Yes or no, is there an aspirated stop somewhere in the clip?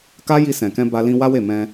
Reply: no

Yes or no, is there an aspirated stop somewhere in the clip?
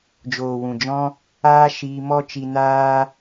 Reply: no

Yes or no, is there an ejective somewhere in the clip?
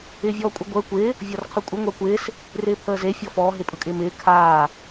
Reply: yes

